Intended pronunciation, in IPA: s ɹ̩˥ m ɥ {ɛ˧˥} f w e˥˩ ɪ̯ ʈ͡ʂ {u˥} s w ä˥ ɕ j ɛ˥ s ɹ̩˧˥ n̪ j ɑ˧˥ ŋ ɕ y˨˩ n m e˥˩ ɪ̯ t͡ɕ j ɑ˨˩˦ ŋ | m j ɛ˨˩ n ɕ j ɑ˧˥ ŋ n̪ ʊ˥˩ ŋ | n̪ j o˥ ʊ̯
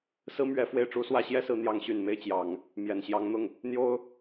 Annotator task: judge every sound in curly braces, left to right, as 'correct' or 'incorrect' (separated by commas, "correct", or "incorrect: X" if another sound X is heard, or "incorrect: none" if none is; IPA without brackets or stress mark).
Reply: correct, correct